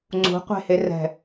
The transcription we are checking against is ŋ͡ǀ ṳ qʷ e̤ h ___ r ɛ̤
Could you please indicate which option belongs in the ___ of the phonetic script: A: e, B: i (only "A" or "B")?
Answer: A